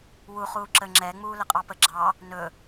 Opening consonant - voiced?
yes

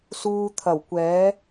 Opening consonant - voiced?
no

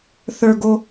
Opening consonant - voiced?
no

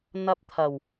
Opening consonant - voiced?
yes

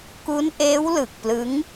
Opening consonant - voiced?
no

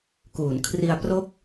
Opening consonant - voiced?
no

